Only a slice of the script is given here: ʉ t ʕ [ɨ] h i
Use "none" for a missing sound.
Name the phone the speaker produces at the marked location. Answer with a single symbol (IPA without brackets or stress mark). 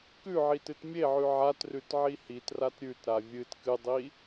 i